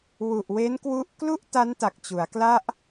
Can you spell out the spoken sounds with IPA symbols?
w u˨˩ ʔ w e˦˥ n k w u˦˥ ʔ k l u˥˩ ʔ t a˦˥ n t a˨˩ k̚ t͡ɕ u˩˦ a̯ k l a˥˩ ʔ

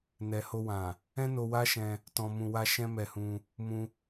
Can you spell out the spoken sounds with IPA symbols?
n ɛ˨ h o˧ w ã˨ | ɛ̃˦ n o˧ w a˦ ʃ ɛ̃˧ | t ɔ̃˧ m ũ˧ w a˦ ʃ ɛ̃˦ m ɛ˧ h ũ˧ | m ũ˧

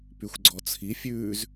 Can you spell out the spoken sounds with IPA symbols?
p y xʷ ɡ͡ǀ ɔ t͡sʰ i fʲ ʉː z

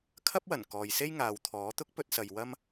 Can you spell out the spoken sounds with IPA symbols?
kʰ ɐ˥ p̚ w ɐ˨˩ n k ɔː˨ j s e˥ j ŋ aː˨ w t̪ʰ ɔː˨˥ t̪ ʊ˥ k̚ p ɵ˧ t̚ s ɐ˨ j w ɐ˥ m

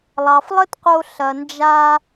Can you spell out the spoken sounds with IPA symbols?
lˠ ɑ˩ f lˠ ə˥ t q o˧ ɬ ɐ˩ n d͡ʒ a˧

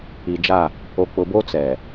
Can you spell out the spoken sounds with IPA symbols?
i˨ d͡ʒ a˦˨ | o˨ k͡p ʊ˨ b o˦ t͡s ɛ˨

